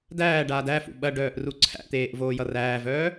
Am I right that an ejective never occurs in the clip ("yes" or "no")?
yes